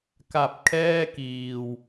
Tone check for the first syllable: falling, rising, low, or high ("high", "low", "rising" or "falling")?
low